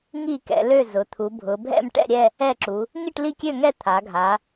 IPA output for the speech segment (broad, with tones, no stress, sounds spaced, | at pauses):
ŋ i˥˨ k ɛ̰˩˧ l ø˥˨ z ʊ˩˧ t̪ʰ u˩˧ bʱ ʊ˩˧ bʱ ɛ̰˥˨ m ʈ ɛ̰˥˨ ɾʲ ɛ˥˨ | ɛ˥˨ ǁ u˩˧ | ŋ i˥˨ ʈ l i˥˨ kʲ ø˥˨ ŋ ɛ˥˨ t̪ʰ a˩˧ ɡʱ a˩˧